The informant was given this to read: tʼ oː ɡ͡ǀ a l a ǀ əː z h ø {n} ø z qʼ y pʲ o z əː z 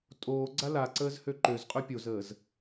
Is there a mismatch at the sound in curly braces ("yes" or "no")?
yes